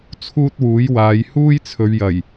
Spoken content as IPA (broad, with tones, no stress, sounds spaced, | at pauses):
t͡sʰ uː˥ t̚ w uː˨˥ j w aː˨˧ j h uː˥ j t͡sʰ ɵ˨˧ ɥ j ɐ˨˩ j